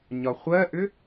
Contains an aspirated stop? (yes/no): no